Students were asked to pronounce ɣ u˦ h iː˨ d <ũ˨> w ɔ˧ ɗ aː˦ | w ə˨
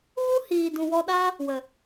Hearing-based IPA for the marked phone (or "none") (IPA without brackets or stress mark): ũ˨